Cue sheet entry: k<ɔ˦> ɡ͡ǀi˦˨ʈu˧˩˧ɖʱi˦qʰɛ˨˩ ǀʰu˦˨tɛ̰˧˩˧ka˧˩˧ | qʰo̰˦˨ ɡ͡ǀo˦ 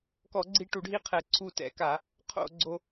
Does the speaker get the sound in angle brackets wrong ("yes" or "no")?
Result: yes